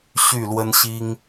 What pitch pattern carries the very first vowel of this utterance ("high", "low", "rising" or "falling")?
falling